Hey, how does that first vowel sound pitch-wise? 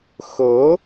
rising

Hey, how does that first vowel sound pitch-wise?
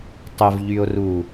low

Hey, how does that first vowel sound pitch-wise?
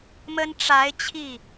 high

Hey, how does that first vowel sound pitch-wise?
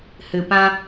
low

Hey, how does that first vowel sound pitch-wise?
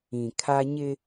low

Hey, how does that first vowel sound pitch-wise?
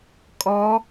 rising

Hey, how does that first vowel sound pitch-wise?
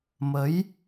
rising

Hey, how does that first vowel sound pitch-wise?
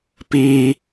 high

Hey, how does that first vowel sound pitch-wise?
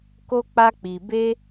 high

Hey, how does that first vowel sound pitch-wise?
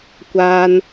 high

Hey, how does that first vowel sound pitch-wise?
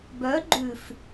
rising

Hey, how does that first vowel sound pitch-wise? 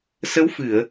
rising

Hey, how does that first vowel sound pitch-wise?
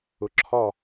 rising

